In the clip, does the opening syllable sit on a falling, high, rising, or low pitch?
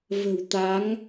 low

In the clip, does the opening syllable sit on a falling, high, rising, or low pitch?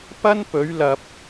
high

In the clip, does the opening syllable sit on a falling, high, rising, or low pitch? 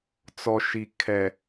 low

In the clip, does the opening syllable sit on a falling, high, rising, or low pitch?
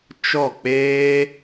falling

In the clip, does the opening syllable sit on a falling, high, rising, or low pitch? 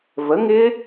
rising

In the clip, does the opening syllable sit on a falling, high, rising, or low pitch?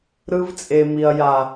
high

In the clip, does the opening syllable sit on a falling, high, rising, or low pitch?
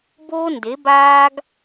high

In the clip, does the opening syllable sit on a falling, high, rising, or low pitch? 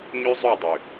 high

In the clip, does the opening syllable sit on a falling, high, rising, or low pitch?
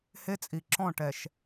high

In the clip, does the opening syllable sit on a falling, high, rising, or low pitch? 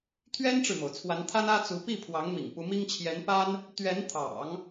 high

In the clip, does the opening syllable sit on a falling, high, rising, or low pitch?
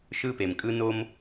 high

